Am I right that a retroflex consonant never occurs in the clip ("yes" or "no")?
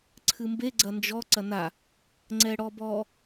no